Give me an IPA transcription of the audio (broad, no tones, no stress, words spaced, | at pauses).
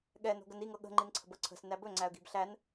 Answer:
ɠɛno̤ɡən iŋɤ ɠə̤ŋ͡ǃinǀʰə̤bɤ ǀʰə̤snæ bɵŋ͡ǀæə̯ɡi̤b ɬæn